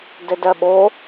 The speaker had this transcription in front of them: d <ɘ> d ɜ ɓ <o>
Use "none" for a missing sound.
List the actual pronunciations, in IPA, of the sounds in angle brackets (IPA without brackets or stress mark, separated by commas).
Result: ɘ, o